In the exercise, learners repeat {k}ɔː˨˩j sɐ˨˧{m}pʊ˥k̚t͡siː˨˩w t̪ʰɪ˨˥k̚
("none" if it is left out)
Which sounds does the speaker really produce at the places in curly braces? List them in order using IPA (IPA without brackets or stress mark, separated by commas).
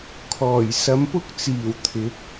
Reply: kʰ, m